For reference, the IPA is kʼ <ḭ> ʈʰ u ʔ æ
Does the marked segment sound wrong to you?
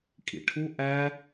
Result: no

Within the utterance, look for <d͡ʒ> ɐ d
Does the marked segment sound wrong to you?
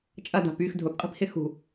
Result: yes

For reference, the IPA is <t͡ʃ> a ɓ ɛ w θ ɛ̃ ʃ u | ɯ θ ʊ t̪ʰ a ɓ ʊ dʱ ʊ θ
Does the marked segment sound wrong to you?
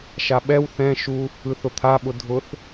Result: yes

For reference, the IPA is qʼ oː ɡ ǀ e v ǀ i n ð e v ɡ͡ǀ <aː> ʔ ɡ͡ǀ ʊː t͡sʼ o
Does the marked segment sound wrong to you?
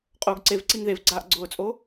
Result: no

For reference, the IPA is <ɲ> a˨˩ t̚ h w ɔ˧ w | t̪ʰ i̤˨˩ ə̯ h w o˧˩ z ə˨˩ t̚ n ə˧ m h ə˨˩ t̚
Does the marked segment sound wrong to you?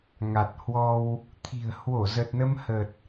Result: yes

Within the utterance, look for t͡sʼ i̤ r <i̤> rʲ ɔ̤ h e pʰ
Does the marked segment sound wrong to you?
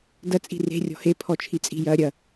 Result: yes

